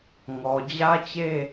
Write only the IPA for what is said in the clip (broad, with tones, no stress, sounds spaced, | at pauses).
ŋ ɔ˨ d͡ʑ ä˦ t͡ɕ e˦